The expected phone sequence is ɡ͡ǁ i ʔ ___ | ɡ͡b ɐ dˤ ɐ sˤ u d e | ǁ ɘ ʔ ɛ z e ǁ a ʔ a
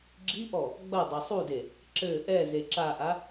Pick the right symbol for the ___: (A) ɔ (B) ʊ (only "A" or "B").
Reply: A